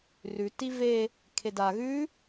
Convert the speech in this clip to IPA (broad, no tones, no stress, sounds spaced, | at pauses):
r ʉ t i v e | kʰ e d a ɣ ʉ